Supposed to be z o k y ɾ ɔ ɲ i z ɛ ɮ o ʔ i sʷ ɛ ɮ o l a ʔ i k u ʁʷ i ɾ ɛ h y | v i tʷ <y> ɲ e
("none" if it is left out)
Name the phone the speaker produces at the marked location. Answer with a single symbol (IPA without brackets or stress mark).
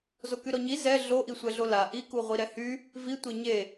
e